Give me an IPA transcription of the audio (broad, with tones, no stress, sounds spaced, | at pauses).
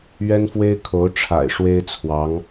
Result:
ɥ ɛ˥ n f w e˥ ɪ̯ kʰ o˧˥ ʊ̯ ʈ͡ʂʰ a̰˨˩ ɪ̯ ʂ w e˥ ɪ̯ t͡sʰ w ɑ˧˥ ŋ